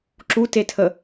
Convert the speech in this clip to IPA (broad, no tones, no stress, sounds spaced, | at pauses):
ǁ u t e tʰ ə